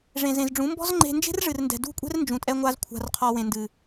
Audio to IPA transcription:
ʐẽ˨zẽ˨zɖ͡ʐũ˨˦ mbɔ̤˦zŋ͡ǃe̤˧nd͡ʒe̤˦rʐɨ˨r ndɛ̤˨dṳ˦˨kʷʼɛ̤˦r nd͡ʒũ˨tʼɛ˧ ŋʷa˧z kʷʰa̤˨rqʰɔ˨ wẽ˨ndɨ˨

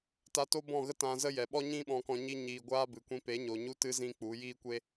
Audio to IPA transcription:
ta˧to˦bɔ̃˦˨ɣə˦ tã˧zə˦jɛ˨ ɓɔ˦ɲĩ˦ɓɔ̃˧kɔ̃˧ ɲi˧ɲiː˨ ɡʷaː˦bɨ˨kʷĩ˧ pe˨˦ɲo˨ ɲu˧tɨ˧ zĩ˦k͡pu˨˦ jiː˦kʷe˦

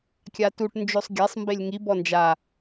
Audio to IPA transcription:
kʲatuʈ nd͡ʒosˤɡʲasˤ mbelʲŋi bɔnd͡ʒa

